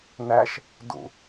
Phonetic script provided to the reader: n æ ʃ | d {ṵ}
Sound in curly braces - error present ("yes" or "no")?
no